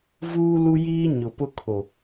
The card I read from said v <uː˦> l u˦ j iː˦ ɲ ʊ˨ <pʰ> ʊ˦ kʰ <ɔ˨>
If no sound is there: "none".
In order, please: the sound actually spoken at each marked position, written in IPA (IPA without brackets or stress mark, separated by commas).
uː˦, p, o˨